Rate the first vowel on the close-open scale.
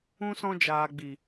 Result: close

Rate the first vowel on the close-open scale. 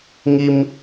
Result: close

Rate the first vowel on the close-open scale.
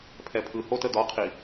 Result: mid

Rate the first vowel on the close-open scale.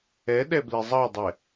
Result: mid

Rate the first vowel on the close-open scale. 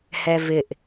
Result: mid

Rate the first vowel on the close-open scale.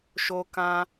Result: mid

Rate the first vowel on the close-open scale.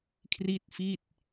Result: close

